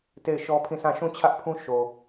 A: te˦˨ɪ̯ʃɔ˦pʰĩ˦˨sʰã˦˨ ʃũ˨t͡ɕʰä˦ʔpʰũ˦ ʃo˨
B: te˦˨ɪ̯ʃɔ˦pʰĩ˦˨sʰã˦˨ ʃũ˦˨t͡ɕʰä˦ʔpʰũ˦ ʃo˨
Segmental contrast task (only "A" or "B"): B